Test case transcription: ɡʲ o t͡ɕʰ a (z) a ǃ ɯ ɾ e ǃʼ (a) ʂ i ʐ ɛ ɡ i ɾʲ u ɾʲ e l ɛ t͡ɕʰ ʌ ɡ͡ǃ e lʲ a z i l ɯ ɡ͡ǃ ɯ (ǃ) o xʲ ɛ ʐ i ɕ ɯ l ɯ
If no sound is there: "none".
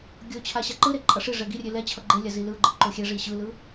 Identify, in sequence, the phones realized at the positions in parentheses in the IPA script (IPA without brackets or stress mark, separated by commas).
ɕ, ʌ, ǃ